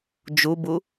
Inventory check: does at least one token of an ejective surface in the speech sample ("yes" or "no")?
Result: no